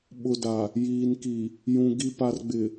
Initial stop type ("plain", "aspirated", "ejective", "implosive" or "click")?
implosive